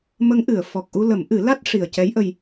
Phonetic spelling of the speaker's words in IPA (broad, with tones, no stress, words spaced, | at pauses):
mə˧˥ŋʔɨ˨˩˨ə̯ fɔ˨˩k̚ʔu˧lə˨˩˦m ʔɨ˨˩˦la˦˥t̚ ʂi˨˩ə̯cɛ˧˥jʔə˧j